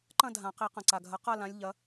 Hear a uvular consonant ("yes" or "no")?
yes